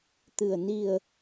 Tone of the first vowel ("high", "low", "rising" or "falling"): low